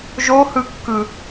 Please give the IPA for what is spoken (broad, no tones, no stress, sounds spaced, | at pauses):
ʒ o h ɯ kː ɯ